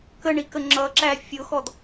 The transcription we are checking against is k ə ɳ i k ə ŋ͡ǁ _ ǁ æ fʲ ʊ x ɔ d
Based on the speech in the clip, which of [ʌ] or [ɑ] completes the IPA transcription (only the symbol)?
ʌ